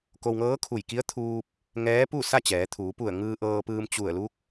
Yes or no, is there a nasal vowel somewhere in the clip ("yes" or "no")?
no